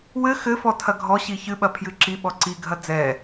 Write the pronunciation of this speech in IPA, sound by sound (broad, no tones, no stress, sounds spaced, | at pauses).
w ɘ x ɘ f ɔ tʰ ɐ ɡʱ ɔ ɕ i ç ɨ ɓ ɐ pʰ j ɨ ǁ i ɓ ɔ ǀ i ɡʱ ɐ d͡z ɛ